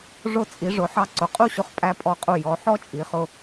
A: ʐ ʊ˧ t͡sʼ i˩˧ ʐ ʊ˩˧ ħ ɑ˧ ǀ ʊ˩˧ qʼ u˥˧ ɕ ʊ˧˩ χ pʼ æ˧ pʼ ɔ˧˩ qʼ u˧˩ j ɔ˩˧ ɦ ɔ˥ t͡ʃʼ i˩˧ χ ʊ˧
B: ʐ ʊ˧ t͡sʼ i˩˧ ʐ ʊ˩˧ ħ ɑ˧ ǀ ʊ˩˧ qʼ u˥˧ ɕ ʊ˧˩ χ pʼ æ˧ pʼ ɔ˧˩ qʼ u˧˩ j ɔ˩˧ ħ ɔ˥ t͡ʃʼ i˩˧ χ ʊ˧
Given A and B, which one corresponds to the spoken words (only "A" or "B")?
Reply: B